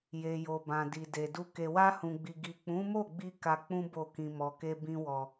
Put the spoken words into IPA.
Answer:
je˨jo˨bã˨ di˨de˨du˧ ke˨wa˧hũ˨ɡ͡bi˨ ɡi˨k͡pũ˨˦mo˦˨ɡ͡bi˧ ka˧ k͡pũ˦ bo˦˨kĩ˧ mɔ˨ke˧ bĩ˧wɔ˨

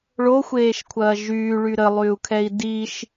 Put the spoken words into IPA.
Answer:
ɭoxʷeːʃkʷʰɐː ʒyːɭy ɾəlˠyːu̯kʰɛi̯ diʃ

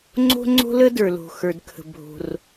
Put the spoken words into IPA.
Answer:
ŋ͡ǀo̤˥ŋ͡ǀo̤˥lə˥ də˞˩lo̤˩xə˞˩dkʰə̤˩ bʱo̤˩r

